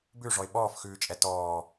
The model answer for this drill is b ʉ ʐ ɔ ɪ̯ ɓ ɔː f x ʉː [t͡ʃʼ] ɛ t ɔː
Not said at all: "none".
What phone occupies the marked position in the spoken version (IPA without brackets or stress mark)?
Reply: t͡ʃʼ